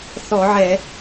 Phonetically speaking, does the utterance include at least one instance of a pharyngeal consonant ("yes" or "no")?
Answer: yes